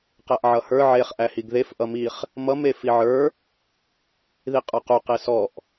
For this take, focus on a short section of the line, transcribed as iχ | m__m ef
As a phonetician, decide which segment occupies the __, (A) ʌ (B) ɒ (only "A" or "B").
A